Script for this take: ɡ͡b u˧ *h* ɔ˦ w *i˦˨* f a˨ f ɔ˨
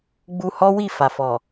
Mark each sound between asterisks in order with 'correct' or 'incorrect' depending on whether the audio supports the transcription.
correct, correct

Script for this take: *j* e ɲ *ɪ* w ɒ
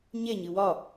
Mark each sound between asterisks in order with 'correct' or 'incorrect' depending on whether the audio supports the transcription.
incorrect: ɲ, incorrect: ɨ

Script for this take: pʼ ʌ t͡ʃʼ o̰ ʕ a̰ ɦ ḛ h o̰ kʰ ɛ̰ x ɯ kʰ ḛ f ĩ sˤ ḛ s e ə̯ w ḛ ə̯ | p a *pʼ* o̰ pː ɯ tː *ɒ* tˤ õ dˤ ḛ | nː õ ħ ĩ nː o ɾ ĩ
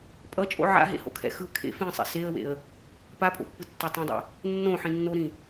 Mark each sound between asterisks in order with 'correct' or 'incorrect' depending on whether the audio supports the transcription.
correct, incorrect: ʌ

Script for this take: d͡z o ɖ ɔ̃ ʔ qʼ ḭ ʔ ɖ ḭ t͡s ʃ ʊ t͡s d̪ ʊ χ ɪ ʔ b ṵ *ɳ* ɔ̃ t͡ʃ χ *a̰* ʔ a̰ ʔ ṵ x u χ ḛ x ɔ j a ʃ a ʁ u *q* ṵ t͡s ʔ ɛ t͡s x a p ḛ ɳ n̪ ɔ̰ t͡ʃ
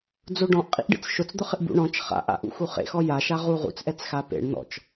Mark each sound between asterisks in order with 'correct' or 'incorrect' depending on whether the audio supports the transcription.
correct, correct, incorrect: ʁ

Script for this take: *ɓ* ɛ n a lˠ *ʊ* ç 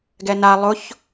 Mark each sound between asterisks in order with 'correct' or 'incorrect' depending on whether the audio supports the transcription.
incorrect: ɡ, correct

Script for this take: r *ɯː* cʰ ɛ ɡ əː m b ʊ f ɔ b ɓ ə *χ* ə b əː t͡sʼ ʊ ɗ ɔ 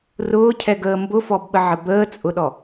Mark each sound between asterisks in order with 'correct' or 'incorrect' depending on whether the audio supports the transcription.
incorrect: ʊː, incorrect: ʕ

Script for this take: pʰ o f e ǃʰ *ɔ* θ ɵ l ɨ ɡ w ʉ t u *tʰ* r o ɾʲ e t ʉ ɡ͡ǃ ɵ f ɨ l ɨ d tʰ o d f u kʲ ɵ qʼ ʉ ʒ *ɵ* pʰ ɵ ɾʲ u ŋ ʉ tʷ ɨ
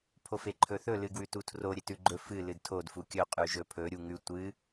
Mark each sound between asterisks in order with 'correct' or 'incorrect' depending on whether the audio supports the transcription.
incorrect: ɵ, correct, correct

